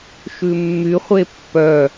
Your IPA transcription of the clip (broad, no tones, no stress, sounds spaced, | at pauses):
ʃ ʉ mː y χʷ e pː œ